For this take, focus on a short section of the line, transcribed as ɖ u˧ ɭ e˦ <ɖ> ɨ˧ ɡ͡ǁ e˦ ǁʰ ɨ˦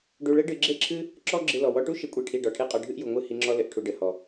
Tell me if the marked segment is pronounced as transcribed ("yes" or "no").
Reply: yes